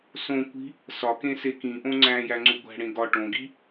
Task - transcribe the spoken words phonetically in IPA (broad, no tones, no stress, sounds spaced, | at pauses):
s õ kʷ i̤ | s ɒ k ẽ s e k ĩ ʔ õ ŋ͡ǀ æ̃ j æ ŋ͡ǀ u ɡʷ æ̤ ɽ ẽ ɡ ɒ ʈ õ ɡ i